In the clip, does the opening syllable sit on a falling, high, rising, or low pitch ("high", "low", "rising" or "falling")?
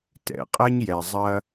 low